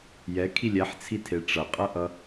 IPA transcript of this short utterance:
j ɛ kʰ i lʲ ɛ ħ t͡sʰ i tʰ e ʈ͡ʂ ʌ qʼ ʌ ʔ ʌ

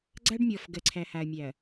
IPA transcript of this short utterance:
ɡ͡ǀ a˦ ɖ mʲ ɔ˨ f ɡ ɜ˨ ǀʰ æ˨ h a˨ ɐ̯ mʲ æ˨ ɐ̯

